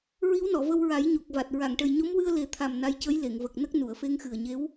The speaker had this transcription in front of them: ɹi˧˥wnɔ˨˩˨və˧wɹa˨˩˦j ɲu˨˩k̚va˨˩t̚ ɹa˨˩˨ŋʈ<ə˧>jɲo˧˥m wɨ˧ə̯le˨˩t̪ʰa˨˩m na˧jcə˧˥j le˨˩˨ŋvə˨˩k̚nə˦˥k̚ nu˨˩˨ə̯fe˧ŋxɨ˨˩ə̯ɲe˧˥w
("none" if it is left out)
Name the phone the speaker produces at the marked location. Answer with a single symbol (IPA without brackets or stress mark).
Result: ə˨˩